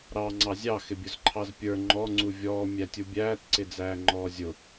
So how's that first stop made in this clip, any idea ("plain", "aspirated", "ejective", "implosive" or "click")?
click